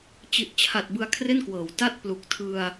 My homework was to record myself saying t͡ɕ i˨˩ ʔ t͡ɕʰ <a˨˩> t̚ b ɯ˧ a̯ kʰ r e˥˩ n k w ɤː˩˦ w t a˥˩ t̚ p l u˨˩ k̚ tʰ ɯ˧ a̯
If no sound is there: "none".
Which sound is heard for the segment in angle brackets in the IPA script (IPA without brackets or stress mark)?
a˨˩